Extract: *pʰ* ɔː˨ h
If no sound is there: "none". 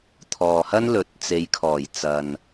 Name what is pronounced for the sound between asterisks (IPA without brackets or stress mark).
t̪ʰ